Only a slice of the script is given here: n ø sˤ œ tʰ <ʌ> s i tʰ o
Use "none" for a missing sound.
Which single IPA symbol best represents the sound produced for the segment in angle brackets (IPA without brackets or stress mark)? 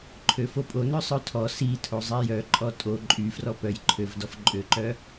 ɔ